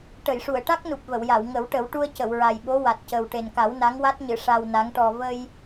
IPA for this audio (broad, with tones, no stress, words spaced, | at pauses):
ʈə˨˩˨jʂu˨˩˨ə̯ʈa˦˥k̚nu˨˩p̚ və˨˩˨wja˨˩˨w ŋə˨˩˦wʈə˨˩˦w ʈu˧ə̯cə˨˩˨wɹa˨˩jɓo˧˥ wa˨˩t̚cə˨˩w ʈe˨˩nka˨˩˦w na˧˥ŋwa˦˥t̚ɲɨ˨˩˨ ʂa˧wna˧˥ŋʈɔ˧ və˧j